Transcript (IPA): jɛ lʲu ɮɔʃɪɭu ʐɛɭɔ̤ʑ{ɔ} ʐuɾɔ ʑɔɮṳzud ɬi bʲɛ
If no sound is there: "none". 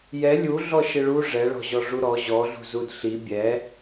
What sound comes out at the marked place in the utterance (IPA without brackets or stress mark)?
ɔ